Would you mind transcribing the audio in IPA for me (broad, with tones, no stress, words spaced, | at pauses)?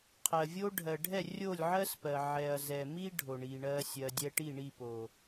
qʰɜ˨vʲo˦ ɖʱɜ˨ɖʱɛ˦˨ rʲo˦˨lʲʕɜ˦spɜ˨ ʕɛ˨ɐ̯zɛ˨mi˦ ɖʱo˨ɳi˨ɳɜ˧ sʲɜ˧dʲɛ˦ ʈi˦˨ɳi˦˨ po˨